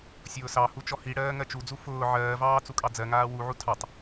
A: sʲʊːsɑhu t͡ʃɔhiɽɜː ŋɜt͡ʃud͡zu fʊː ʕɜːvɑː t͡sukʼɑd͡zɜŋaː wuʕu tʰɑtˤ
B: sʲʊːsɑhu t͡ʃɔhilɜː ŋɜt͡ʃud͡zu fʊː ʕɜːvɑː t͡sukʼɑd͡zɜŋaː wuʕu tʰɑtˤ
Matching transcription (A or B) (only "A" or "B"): A